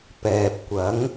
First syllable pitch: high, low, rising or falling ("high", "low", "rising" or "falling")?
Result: low